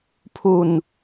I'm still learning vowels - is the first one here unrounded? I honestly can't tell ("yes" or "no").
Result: no